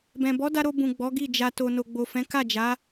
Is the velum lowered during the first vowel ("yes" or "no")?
yes